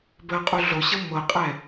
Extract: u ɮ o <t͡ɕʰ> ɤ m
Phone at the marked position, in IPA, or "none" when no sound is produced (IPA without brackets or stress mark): ɕ